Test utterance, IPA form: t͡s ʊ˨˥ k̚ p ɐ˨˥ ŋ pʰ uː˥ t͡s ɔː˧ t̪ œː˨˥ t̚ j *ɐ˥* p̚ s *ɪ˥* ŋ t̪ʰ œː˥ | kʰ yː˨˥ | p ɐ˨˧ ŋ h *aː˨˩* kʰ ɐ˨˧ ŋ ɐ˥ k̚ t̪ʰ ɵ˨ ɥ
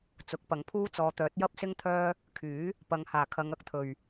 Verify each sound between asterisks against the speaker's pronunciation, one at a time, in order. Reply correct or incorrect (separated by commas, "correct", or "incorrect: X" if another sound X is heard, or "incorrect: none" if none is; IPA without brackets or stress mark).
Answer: correct, correct, correct